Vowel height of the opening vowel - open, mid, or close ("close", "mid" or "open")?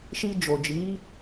close